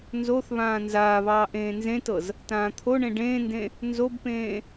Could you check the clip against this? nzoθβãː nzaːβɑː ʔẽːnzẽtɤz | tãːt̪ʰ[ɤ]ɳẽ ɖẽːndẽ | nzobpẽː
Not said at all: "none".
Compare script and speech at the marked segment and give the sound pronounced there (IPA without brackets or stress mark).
o